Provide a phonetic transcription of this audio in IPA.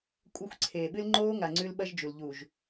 kʷʼɐ˦˨xʷǀʰeː˨ɓɨ˦l ŋ͡ǃoː˦ŋa˨ ŋ͡ǀʉ˦lɓɐ˦ʒd͡ʒu˨l ʎu˨ʒ

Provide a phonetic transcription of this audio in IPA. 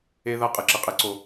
e˦ða˦ qʼɯ˨˦ǁɯ˨qʼe˦ǀo˦

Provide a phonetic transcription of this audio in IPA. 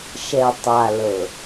ʃɛ˨ tˤa˨ lɤ˨

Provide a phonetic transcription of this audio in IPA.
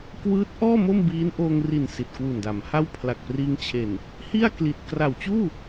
kwɯː˦˥t̚ʔɔː˥˩ mo˥˩mbiː˦˥nʔoː˧ŋri˨˩n si˨˩t̚kwu˨˩nda˩˦mha˥˩w pʰla˨˩k̚priː˧ŋt͡ɕʰe˨˩n | hi˥˩a̯ kli˨˩t̚ kra˨˩wt͡ɕuː˥˩

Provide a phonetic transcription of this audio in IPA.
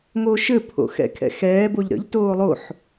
ŋoʃɘ pʰo̰xɛ̰kʰɛ̰xɛː boʎɾə̰ʎ toːlˠoħ

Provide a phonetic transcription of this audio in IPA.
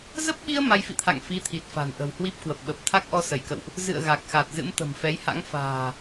zə˦˥p̚ɓi˧ə̯ ma˧jfḭ˧˨t̪ʰa̰˧˨ŋ fi˨˦t̪ʰi˨˩t̚ fa̤˨˩nʔə̤˨˩whwi˦˥p̚ kwə˨˩p̚ɓə˨˩p̚ t̪ʰa˦˥k̚ʔɔ˧sə˧˩jkə̰˧˨wʔ | zɨ̰˧˨ə̯ ɣa˨˩k̚xa˨˩t̚ zɨ̰˧˥mt̪ə̤˨˩mfɛ˨˦jha̰˧˥ŋ fa̤ː˨˩

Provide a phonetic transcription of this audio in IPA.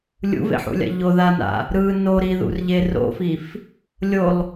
lʲṵvḛħṵlʲa̰ ʎoðana̰ | ɾɯ noɾiðṵrʎe ro̰fif | lʲolˠ

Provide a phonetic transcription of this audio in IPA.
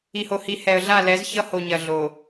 i˨ho˨hi˨ hɛ˨ə̯ɮa˦˨lɛ˨˦z çʌ˦ho˨ɲɐ˨ ɮo˨

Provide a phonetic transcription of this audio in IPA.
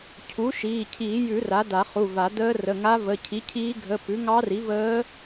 cʰu˩˥ ʃiː˩˧˩cʰiː˨˩˦jʉ˨˩˦ ra˩˥da˨˩˦χu˩˧˩va˨˩˦ dəː˧˥ rə˩˧˩ŋa˧˥ və˩˧˩cʰi˩˥cʰiː˧˥ɡʱə˩˧˩ pʉ˩˥ŋɑ˧˥ri˩˥ vəː˧˥

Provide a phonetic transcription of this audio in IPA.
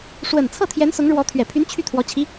ʂwə˨˩nt͡sʰɤ˥˩t̪ʰjɛ˧˥n sʊ˧˥ŋɻwɔ˧˥ t̪ʰɥɛ˨˩pʰy˧˥n t͡ɕʰy˥˩t̪ʰwɔ˧˥ t͡ɕʰi˧˥

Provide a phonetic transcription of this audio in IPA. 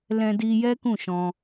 lɛ̃˧di˧ jɛ˦kũ˦˨ʃɔ̃˧

